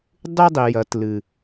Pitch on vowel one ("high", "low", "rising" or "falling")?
high